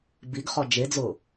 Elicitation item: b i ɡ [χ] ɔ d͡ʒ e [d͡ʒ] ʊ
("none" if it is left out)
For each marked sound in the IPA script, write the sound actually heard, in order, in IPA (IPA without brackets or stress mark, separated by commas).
χ, d͡z